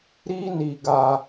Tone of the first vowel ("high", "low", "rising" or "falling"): high